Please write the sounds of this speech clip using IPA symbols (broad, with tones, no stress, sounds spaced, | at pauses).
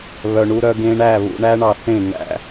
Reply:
β œ˨ ɳ u˧ ɾ œ˧ ɡ ẽ˧ ɳ æ˦˨ β ṵ˧ ɳ æ˦ ɳ ɑ˧ θ ẽ˦˨ ŋ æ̰˦